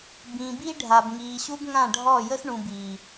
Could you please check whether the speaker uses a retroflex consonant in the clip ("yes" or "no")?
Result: yes